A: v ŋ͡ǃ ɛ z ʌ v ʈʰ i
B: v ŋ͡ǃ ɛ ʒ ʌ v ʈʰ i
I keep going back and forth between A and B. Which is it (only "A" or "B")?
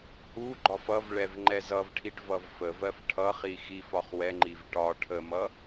A